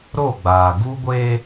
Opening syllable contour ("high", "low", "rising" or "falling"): falling